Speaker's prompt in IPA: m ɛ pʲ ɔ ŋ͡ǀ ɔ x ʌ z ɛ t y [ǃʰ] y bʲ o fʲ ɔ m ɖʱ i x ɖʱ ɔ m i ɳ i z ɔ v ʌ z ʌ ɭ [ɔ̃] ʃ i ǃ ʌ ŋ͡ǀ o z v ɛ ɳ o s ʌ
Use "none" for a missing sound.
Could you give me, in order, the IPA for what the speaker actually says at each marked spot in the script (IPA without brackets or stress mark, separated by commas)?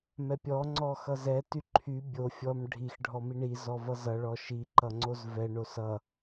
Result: ǃʰ, ɔ